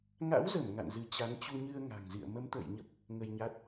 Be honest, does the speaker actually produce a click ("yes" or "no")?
no